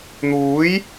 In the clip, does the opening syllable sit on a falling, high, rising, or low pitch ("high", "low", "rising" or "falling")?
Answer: rising